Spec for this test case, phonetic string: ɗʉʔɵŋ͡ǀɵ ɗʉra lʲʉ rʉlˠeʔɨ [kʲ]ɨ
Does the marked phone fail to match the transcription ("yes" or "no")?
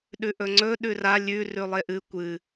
yes